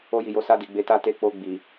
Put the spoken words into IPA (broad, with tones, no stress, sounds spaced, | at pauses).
o˧ j i˨ j o˨˦ s a˧ d i˨ ɡ͡b e˨˦ t a˦˨ t e˧ k͡p o˧ ɡ͡b i˨